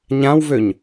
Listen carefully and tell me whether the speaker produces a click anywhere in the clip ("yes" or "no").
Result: no